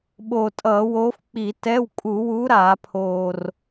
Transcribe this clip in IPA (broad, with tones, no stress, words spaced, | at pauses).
ɓoː˨˩tʼʌː˧˩˧woː˨˦f k͡pi˧˩˧ tɛ˧˥˧w kʼu˧˩˧wu˨˦ ɾaː˧˩˧pʰoː˨˩r